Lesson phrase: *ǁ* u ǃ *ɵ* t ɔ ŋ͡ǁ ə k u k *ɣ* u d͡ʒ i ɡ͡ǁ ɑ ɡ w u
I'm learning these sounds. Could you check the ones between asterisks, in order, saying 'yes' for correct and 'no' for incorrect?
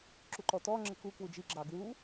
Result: yes, no, no

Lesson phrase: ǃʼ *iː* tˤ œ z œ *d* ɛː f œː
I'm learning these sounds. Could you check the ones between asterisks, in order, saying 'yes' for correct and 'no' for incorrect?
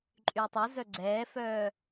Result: no, no

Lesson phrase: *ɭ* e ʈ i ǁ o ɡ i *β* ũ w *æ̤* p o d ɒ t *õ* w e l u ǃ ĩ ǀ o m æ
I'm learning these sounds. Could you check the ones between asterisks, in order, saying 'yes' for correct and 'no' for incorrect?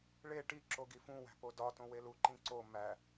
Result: yes, no, yes, yes

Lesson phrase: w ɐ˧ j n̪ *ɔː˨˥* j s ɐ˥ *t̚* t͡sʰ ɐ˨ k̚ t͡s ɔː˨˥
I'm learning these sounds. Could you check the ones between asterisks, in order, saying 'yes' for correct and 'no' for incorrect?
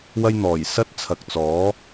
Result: no, yes

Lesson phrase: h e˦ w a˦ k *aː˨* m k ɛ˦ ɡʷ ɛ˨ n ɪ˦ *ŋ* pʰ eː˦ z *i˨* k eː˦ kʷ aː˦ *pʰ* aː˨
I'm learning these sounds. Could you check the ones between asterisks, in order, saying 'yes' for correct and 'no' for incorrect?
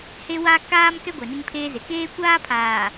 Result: no, yes, no, yes

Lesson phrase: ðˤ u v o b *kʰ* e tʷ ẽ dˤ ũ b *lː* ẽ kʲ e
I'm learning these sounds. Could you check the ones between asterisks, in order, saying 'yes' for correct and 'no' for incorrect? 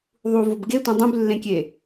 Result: no, yes

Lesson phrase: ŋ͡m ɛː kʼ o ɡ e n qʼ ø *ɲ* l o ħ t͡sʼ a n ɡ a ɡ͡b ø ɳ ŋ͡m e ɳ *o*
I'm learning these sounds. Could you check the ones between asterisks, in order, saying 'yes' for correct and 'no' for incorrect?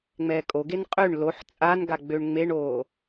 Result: no, no

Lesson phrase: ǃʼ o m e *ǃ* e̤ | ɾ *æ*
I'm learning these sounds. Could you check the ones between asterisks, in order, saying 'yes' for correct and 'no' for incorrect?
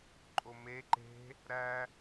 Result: yes, yes

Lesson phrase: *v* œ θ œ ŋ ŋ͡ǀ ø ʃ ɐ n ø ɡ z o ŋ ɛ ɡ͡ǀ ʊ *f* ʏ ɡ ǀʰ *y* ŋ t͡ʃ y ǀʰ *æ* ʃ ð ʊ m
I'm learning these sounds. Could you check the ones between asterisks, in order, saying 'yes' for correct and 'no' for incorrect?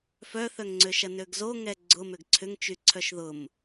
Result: no, no, no, no

